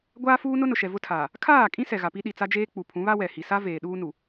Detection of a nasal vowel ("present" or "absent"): present